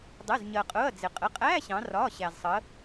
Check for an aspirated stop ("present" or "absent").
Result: absent